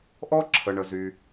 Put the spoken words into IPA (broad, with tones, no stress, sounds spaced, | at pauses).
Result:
ʔ ɔ˥ ǁʰ ə˩ ɳ ə˩ z y˩